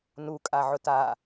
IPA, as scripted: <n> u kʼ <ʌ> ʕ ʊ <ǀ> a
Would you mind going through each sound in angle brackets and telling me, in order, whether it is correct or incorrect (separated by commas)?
correct, incorrect, incorrect